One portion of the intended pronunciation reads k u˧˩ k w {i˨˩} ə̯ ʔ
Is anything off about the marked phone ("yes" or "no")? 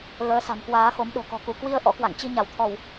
yes